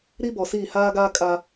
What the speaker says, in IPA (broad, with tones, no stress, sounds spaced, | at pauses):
ɾ i˦ b ɔ˨ s iː˦˨ h aː˦ ɡ aː˦ kʼ a˦